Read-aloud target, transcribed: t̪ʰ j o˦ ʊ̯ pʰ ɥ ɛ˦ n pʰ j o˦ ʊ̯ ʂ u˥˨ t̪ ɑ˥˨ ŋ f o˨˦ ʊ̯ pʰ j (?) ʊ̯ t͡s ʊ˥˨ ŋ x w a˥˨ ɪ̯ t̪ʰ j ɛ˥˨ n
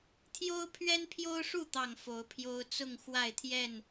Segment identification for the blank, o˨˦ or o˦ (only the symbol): o˦